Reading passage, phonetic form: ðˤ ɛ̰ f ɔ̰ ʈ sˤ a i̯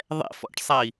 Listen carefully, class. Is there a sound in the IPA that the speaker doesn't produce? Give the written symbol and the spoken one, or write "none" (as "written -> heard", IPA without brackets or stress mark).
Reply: none